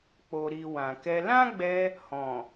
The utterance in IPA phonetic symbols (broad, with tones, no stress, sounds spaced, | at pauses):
k͡p o˨ ɾ i˨ w ã˨ k ɛ˧ l ã˦ ɡ͡b ɛ˧ | h ɔ̃˨